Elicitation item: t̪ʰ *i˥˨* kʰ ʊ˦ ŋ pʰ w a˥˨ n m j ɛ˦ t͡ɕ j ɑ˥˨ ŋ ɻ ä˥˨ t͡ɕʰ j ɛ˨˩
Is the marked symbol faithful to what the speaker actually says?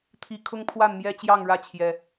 no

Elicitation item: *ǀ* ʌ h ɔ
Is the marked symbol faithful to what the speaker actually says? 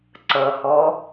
yes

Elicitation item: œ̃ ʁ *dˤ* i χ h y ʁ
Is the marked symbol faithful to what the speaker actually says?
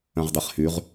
yes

